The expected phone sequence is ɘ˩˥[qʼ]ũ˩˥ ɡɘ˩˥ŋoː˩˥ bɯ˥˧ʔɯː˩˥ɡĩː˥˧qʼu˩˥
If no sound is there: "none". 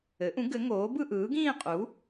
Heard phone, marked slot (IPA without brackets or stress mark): ʔ